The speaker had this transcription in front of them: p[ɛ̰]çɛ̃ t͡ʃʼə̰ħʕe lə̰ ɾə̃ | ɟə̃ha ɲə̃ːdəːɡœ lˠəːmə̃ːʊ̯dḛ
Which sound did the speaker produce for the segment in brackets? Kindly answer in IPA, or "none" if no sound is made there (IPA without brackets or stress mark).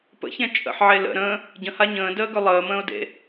ə̰